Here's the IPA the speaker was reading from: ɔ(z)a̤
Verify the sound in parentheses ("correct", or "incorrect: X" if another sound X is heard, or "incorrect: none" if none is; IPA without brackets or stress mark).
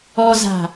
correct